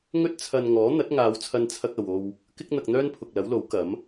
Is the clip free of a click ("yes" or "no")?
yes